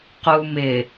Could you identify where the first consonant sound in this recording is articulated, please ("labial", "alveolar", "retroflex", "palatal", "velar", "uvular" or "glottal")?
uvular